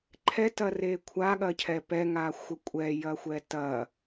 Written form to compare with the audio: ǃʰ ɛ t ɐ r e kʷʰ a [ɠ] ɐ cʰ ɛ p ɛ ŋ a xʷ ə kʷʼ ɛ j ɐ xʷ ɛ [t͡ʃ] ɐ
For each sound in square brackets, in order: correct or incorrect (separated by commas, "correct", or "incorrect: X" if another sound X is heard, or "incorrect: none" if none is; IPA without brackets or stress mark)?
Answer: correct, incorrect: t